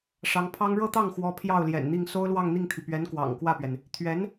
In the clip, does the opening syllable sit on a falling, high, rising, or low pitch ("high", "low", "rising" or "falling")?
rising